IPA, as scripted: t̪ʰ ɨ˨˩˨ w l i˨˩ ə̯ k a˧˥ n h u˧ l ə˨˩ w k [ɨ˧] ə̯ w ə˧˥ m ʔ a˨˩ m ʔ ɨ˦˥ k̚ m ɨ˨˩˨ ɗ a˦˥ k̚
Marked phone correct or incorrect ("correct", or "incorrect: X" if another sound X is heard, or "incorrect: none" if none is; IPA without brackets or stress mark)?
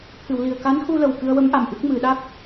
correct